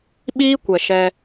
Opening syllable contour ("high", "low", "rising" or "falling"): high